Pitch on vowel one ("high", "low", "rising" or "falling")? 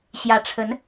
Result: rising